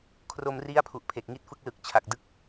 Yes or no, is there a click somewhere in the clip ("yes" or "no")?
no